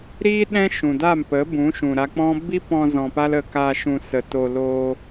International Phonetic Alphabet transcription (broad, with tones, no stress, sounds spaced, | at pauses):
ɾ iː˦ ɗ ɛ̃˦ ʃ ũ˨ d a˦˨ m p ə˨˦ b ũ˨˦ ʃ ũ˨ ɾ a˧ k͡p ɔ̃˦ b i˦ p ɔ̃˧ z ɔ̃˧ p a˦ l ə˧ k a˧ ʃ ũ˧ s ə˧ t o˧ l oː˧